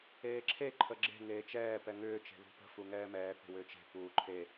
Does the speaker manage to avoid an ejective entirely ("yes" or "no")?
yes